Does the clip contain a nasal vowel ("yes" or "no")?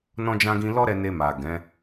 yes